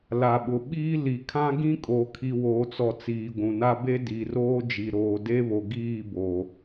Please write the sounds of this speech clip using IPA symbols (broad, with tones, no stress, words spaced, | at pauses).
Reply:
la˨ɓʊ˨ɓiː˦ li˨kʰã˦ ɡĩ˦kʼo˨ kʰi˨woː˨t͡sɔ˨ t͡siː˨ɡʷũ˨na˦ be˦ di˨roː˦d͡ʒi˨ ɾoː˨de˦βo˨ ɡiː˦˨bo˨